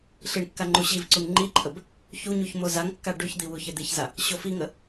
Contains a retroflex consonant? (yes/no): yes